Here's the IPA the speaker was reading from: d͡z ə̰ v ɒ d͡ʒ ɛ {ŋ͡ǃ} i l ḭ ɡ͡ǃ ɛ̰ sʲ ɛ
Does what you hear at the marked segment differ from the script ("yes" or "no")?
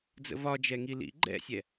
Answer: yes